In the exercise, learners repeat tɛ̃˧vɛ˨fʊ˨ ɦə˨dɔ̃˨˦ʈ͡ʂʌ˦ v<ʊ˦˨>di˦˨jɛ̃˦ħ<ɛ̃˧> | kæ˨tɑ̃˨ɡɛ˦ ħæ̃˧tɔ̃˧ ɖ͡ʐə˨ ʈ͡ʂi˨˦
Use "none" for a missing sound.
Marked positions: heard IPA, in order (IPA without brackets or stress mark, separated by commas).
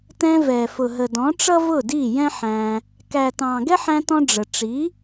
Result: ʊ˦˨, æ̃˧